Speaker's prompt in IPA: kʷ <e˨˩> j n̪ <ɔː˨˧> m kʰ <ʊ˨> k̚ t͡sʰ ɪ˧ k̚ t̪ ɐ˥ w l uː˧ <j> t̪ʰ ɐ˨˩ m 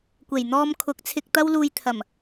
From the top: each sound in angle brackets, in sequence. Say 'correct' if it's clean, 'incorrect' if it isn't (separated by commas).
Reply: correct, incorrect, incorrect, correct